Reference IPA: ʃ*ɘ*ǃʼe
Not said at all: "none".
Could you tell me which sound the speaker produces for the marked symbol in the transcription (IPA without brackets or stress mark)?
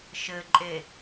ɘ